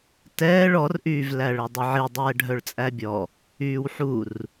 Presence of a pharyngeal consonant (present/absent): present